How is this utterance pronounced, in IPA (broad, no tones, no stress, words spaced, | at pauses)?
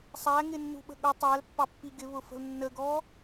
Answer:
sˤæŋɪnːṳɓə̤ ɠʊ tˤælpːɑpːi ɡɪβʊfə̤l nːəɡɔ